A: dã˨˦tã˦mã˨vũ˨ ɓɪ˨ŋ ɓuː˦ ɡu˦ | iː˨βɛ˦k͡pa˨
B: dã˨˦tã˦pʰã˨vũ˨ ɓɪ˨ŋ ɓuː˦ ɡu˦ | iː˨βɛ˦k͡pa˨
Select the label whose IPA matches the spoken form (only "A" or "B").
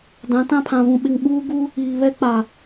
B